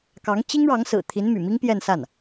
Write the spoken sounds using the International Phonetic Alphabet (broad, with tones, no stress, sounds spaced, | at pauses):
k ɑ˧˥ ŋ t͡ɕ i˥ ŋ ɻ ɑ˧˥ ŋ s ɹ̩˨˩ t̪ʰ i˧˥ n m y̰˨˩ m i˥ ŋ p j ɛ˥˧ n s a˥˩ n